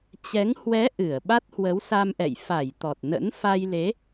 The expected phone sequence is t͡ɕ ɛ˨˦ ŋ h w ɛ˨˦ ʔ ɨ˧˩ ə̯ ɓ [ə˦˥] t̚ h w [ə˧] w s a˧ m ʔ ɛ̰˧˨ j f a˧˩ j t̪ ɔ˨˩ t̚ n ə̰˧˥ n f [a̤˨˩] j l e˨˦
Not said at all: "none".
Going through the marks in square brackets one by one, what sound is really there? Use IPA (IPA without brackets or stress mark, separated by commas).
a˦˥, ə˨˦, a˧